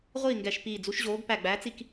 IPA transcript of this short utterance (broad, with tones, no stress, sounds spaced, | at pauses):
ʁʷ iː˥˨ ŋ ɡ ɛ˧˩ ʃ p iː˧˩ d͡z u˨˥ ʃ ʑ oː˨˥ ɡ p æ˧˩ ɡ͡b æː˨˥ t͡s i˧˩ k